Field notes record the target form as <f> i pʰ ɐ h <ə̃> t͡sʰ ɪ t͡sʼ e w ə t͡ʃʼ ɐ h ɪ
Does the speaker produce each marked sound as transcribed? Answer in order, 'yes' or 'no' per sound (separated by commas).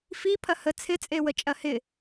yes, no